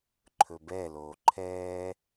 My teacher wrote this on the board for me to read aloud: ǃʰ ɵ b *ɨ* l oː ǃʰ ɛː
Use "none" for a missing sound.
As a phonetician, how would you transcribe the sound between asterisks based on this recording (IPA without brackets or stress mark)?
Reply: ɛ